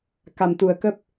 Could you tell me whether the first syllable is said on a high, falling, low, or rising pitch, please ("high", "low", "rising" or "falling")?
low